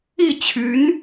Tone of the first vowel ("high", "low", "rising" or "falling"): falling